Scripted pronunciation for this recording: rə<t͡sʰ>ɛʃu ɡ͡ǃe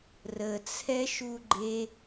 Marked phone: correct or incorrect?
correct